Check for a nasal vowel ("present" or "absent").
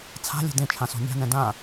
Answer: present